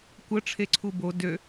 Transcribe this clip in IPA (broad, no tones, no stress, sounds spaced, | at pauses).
kʷ ə ʈ͡ʂʰ e ǀʰ u b o d ø